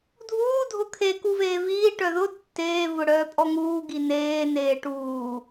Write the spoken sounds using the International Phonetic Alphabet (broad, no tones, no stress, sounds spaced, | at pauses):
dʱ uː dʱ ʊ kʰ e k u v eː v iː ʈ œ ð ʊ tː eː v ʊ ɽ œː pʼ ɔ ŋ uː ɡ i n eː n eː ʈ uː